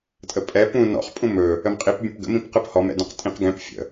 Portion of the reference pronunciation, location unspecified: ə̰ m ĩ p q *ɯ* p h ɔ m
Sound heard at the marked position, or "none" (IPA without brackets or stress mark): ɯ